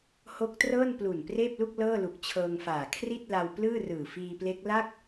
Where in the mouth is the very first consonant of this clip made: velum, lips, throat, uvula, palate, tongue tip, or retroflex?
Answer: throat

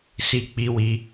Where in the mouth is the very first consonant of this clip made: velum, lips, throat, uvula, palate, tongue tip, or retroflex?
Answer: tongue tip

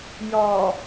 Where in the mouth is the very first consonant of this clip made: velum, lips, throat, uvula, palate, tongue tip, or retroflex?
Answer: palate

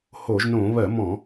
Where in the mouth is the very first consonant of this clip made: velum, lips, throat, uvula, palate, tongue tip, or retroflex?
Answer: throat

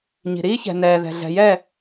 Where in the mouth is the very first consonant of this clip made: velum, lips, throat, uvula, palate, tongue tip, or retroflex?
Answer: palate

